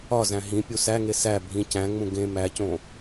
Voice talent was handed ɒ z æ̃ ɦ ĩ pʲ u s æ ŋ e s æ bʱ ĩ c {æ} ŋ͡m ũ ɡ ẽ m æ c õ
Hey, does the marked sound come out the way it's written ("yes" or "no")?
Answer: no